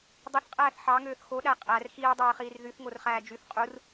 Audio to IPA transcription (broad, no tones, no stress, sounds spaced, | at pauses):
dˤ ɯ θ qʼ æː θ ħ ɑ ŋ øː θ x o ɗ æ qʼ æ r x iː dˤ øː χ iː r ð y θ ŋ o r χ æː d͡ʒ y θ qʼ u r